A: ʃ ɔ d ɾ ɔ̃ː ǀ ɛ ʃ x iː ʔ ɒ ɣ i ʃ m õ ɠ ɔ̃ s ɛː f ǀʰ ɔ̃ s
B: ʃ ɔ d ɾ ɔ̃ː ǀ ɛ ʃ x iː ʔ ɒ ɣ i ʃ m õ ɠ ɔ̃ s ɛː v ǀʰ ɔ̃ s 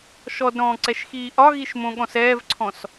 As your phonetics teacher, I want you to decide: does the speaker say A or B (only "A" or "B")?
B